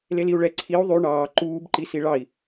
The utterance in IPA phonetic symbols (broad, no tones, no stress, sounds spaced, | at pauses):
l e l i u̯ ɭ ɛ ǀʰ i u̯ ðˤ y ɳ ɑː ǃ uː b ǃ i s i ɭ ɑ i̯